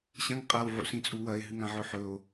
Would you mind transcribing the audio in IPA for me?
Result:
ɕɐ̃ŋ qʼawʕṵsĩt͡sʼu wɐe̯ɦɨŋãʕɵ ħɵo̯

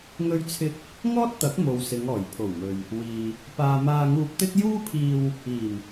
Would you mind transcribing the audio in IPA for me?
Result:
ŋɵ˧ɥt͡sʰɪ˧k̚ | ŋɔː˥t̚t̪ɐ˨˥k̚ mo˨wsɪ˨˧ŋ ɔː˨˩jpʰo˨˩wmɵ˨ɥ | wiː˨ | paː˨ maː˧ŋuː˧p̚t̪ɪ˥k̚ juː˥pʰiː˧w | iː˨˩m

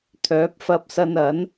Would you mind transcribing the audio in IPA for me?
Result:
t̪ʰœː˨˥p̚fɐ˧p̚sɐ˧nɐ˨˥n

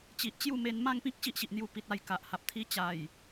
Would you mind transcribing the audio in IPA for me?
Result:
t͡ɕi˨ʔt͡ɕju˥˧me˧n mã˥˧ŋpĩ˦k̚ ɕi˦ʔɕi˨ʔn̪ju˧ pi˨t̚a˧j ka˨ʔha˨p̚ t̪ʰi˧t͡ɕa˨˩j

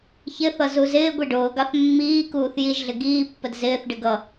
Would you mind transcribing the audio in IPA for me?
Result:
çɪθʌ zuzɪːɡʷi ɖʊːɡɑθ mːiːkuːθ jiʒɮɪ ɡiːpːəd zɪːθɖɪ ɡʌ

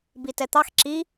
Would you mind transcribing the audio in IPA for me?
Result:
bitɛt̪ɑx ǁi

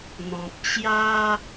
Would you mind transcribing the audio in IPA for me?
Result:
n̪ɔ̃˨p̚t͡ɕja˦

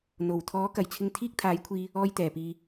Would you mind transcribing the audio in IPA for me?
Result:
n̪o˨˩wt̪ʰɔː˨˥kɐ˨˩jt͡sʰɪ˧ŋ t̪ʰiː˥k̚t̪ʰaː˨˥jkʷʰiː˧ | ɔː˧jt̪ɛː˨˩piː˨

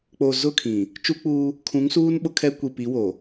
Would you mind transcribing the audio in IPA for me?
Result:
k͡po˨ zʊ˦˨ kʰĩ˨ | t͡ʃu˦k͡puː˦ | kʰũ˨˦ŋsuː˦n ɓʊ˦kʰɛ˦ kʷi˨pi˨˦wo˨

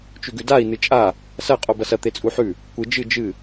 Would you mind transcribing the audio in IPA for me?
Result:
t͡ʃʉɡʉdai̯ nɨt͡ʃʼa | sɐ qʼobɐsɐ t̪et͡sʼuħʉ | kʷɨ d͡ʒɨ d͡ʒɨ

